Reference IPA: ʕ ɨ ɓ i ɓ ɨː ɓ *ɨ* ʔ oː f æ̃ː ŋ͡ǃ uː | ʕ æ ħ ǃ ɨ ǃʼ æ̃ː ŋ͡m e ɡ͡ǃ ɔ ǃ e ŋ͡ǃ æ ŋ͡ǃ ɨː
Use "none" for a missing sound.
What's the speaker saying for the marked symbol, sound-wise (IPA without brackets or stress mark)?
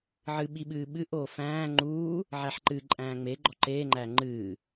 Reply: ɨ